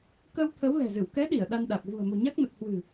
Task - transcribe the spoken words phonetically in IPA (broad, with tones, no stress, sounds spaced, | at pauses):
k əː˧ w t̪ʰ ə˨˦ w l ɛ̤˨˩ z ɨ˧˩ w k ɛ˨˦ ɗ i˧˩ ə̯ ɗ a˧ n ɗ a˨˩ k̚ v ṳ˨˩ ə̯ m o̤˨˩ ɲ a˦˥ k̚ m ə˨˩ t̚ h w ɨ̤˨˩